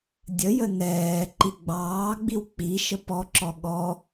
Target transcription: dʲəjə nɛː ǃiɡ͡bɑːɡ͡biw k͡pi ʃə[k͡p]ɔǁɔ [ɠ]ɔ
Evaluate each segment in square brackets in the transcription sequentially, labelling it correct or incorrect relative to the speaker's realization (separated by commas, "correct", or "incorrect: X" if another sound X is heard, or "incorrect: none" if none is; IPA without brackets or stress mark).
incorrect: p, correct